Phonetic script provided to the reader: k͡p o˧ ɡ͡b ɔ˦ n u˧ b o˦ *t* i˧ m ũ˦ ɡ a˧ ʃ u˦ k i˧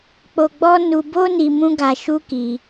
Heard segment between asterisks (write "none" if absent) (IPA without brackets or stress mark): n